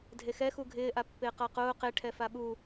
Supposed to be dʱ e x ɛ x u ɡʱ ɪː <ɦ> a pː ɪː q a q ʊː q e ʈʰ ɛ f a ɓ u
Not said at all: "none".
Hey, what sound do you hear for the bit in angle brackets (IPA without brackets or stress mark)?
ʔ